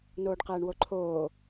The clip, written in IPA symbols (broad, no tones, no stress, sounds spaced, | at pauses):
n oː ɖ q ɛː ɳ w o ǃʰ oː